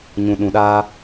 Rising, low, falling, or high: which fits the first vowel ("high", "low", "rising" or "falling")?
low